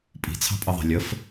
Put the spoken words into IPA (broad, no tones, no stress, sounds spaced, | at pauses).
pʼ i̤ t͡sʰ ɑ̤ pʼ ʌ ðˤ a̤ lʲ ə f